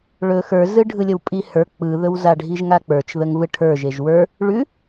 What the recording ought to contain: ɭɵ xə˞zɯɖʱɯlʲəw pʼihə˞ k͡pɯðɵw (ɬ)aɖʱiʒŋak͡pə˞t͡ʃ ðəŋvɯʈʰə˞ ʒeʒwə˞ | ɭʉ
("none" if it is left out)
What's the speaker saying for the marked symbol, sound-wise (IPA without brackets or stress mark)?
z